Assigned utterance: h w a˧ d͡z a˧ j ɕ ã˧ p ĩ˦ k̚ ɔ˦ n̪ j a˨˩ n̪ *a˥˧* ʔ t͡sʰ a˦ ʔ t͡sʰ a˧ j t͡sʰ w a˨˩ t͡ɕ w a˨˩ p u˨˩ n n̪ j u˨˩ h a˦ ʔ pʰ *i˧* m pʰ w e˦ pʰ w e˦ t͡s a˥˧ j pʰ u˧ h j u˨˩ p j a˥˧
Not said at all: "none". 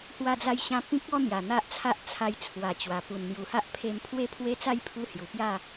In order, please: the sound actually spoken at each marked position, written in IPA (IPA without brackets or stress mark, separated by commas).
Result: a˦, e˧